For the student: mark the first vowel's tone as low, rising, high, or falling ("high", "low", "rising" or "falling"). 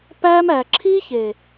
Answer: high